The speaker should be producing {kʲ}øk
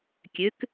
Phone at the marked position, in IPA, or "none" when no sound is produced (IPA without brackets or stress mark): kʲ